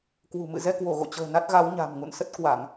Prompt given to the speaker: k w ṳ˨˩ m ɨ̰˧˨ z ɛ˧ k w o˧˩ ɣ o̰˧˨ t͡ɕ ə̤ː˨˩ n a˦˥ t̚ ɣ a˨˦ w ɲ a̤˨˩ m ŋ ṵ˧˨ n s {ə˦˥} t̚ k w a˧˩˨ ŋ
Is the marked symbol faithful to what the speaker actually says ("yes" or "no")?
yes